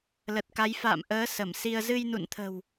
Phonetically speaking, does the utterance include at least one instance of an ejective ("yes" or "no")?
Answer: no